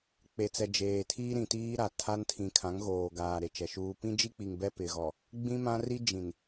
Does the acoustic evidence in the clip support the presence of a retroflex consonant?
no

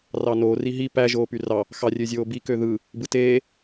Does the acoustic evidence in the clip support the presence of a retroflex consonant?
no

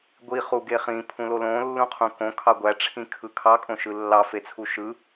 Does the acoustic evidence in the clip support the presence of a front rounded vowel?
no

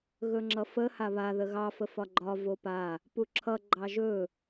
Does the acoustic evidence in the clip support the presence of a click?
yes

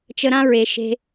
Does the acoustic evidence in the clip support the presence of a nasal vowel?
yes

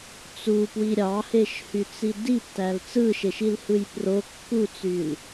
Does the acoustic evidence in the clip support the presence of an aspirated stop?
no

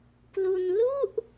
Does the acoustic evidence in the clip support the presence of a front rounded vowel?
no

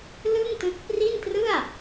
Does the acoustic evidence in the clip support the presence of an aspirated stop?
no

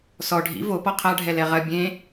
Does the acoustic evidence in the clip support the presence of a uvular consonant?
yes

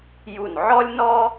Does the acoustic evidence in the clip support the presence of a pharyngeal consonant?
yes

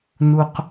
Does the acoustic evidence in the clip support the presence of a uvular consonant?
yes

